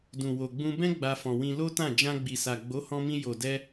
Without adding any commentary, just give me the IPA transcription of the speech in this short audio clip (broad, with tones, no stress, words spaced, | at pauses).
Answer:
dũ˨wo˨ɡ͡bũ˧ bɛ̃˦ ɡ͡ba˧fɔ̃˨wĩ˧ lo˦tã˦˨ d͡ʒã˧ɡ͡bi˨sa˨ ɡ͡bo˨˦hɔ̃˧mĩ˧ jo˨dɛ˧